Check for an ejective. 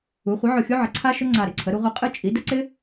present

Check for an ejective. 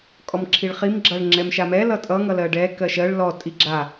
present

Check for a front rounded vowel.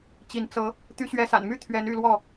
present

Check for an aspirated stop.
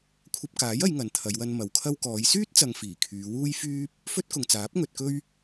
present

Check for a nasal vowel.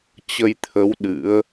absent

